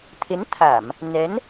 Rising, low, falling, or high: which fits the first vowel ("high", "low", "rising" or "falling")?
rising